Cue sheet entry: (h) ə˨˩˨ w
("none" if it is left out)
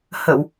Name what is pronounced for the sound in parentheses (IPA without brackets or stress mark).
h